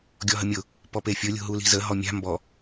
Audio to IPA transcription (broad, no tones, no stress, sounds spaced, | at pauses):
ɡʲ ɔ ɦ ə mʲ ʊ | p ɔ p e fʲ ʊ lʲ ṳ ɦ u l i̤ z ə ɦ ɔ mʲ a̤ m b ɔ